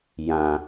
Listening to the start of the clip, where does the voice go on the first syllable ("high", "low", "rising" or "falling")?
low